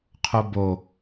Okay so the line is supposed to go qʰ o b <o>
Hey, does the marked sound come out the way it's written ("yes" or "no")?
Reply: yes